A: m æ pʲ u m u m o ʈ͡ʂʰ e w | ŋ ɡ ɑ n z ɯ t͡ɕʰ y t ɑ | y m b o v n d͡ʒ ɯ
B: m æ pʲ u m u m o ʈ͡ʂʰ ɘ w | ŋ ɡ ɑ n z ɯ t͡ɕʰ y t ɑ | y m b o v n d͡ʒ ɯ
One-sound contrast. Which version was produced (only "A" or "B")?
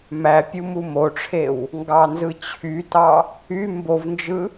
A